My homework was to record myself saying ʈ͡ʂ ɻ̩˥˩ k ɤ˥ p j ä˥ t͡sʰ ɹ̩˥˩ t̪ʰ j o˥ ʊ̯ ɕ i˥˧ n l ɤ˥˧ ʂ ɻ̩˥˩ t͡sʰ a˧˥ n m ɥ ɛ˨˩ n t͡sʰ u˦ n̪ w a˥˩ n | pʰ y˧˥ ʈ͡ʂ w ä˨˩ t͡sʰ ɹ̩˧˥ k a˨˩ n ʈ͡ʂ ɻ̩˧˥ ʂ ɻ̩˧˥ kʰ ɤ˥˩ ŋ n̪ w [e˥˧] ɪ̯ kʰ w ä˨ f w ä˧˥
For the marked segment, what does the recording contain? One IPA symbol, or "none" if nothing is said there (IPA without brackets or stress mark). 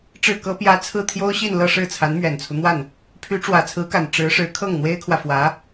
e˥